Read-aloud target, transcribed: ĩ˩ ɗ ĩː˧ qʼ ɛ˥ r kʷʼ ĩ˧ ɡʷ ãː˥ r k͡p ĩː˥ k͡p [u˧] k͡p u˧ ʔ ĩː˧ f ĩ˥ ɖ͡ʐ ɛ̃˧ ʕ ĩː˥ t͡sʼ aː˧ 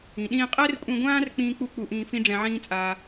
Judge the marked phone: incorrect: u˥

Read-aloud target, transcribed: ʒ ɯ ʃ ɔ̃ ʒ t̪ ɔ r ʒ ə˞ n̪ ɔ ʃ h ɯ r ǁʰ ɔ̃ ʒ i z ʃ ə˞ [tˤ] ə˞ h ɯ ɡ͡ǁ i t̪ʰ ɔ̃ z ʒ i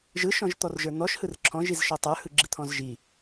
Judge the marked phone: correct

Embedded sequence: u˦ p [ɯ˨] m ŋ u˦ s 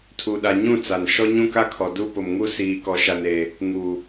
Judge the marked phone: incorrect: ʊ˨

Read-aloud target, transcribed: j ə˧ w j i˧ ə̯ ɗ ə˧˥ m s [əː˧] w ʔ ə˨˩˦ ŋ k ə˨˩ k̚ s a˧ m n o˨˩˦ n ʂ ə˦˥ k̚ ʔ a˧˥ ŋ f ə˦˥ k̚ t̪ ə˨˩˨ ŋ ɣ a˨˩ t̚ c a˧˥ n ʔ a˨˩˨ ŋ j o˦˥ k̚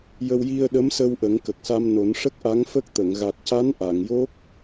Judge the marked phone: incorrect: ə˧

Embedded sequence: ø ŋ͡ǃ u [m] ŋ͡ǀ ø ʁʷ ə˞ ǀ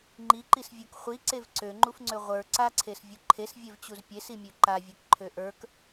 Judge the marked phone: incorrect: f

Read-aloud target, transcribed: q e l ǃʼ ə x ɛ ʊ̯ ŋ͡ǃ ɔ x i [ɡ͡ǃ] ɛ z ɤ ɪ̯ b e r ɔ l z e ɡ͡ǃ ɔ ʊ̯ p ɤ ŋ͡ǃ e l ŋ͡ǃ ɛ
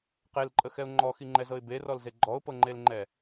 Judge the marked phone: incorrect: ŋ͡ǃ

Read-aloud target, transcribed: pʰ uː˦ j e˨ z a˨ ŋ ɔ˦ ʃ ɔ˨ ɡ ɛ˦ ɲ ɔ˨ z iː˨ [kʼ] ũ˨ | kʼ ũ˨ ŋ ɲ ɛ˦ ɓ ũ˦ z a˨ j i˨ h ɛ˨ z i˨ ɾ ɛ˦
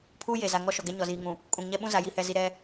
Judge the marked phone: incorrect: ŋ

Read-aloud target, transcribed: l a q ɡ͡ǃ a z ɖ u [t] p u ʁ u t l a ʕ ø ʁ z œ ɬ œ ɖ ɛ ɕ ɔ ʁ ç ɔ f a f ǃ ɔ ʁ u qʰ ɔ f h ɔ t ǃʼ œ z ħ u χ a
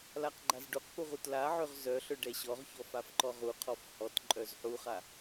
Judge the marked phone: incorrect: q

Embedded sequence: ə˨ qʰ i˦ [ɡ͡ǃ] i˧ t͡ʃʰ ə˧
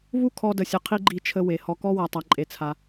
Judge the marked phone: correct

